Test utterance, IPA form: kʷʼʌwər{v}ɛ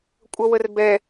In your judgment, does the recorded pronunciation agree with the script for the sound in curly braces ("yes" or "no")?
no